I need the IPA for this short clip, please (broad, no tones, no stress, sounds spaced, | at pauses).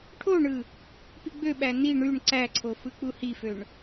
ʈʰ o ɳ ɯ | p i ɡ͡b ø ɓ æ n i ɳ y ɳ ǀ æ ǀʰ o f ɯ k͡p u h i f ø ɳ